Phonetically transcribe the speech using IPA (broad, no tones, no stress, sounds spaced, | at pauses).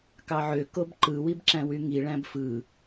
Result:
k ɑ ʕ ø k o b ǃ ɯ w i b ǁ æ̃ w y ŋ i ɭ æ̃ b f ɯ